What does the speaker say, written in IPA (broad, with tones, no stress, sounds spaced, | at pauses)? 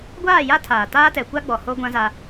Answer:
ɡʷ aː˦˨ j a˦ tʰ aː˨ t aː˦ t ɛ˨ kʷ a˦ ɡ͡b ɔ˨ h o˦ ɡʷ ã˦ z a˦